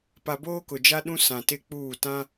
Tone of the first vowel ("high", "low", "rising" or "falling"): low